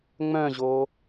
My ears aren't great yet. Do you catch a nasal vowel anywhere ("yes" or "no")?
yes